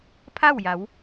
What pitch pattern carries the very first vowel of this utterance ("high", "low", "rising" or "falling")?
falling